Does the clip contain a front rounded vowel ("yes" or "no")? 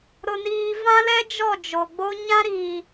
no